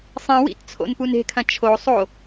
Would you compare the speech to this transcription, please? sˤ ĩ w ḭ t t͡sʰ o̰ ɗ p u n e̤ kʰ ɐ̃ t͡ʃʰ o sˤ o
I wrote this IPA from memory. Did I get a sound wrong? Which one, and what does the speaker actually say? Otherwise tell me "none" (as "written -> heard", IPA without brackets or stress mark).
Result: ɗ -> n